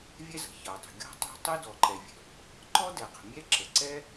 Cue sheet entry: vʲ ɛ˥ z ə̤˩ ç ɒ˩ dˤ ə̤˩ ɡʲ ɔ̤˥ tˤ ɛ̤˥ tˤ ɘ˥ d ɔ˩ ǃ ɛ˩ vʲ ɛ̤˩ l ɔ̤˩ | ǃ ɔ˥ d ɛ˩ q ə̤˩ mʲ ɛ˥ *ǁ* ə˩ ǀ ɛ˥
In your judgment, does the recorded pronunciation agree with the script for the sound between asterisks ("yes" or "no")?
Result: yes